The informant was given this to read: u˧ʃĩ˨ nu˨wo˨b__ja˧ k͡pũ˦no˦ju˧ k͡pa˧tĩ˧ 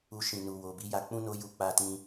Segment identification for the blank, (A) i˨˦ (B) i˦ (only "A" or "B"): A